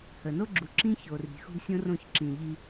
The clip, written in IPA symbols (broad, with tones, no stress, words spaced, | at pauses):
hə˨ no˦ɡ͡ǁu˨ǁĩ˦ ço˨ri̤˨xṳ˦ sʲõ˦rõ˦˨çǁĩ˨ʎi˦